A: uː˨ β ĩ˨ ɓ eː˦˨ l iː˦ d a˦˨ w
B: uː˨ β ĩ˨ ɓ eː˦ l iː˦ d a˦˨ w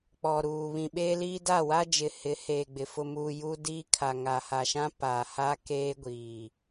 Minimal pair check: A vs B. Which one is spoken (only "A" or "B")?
B